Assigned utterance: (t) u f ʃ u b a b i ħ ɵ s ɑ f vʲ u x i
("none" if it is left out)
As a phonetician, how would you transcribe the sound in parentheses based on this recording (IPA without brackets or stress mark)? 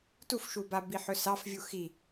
t